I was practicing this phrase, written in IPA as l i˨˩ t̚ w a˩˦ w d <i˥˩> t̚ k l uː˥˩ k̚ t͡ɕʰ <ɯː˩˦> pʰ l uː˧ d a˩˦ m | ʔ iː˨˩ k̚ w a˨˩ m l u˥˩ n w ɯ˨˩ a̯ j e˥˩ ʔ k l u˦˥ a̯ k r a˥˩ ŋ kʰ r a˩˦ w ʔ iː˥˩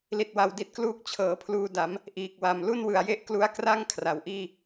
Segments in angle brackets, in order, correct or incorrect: incorrect: i˨˩, incorrect: ɤː˩˦

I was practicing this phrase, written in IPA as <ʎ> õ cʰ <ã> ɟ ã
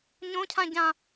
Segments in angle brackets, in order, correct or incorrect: incorrect: ɲ, correct

